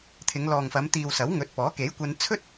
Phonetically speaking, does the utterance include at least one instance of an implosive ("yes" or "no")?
no